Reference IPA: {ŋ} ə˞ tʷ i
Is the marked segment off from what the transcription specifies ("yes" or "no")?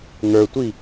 no